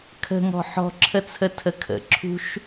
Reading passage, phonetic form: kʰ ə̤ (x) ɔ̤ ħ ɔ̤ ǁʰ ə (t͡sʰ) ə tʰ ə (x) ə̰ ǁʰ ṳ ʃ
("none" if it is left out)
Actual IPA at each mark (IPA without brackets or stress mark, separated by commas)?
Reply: ŋ, t͡sʰ, kʰ